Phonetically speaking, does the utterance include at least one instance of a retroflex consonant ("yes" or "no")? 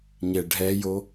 yes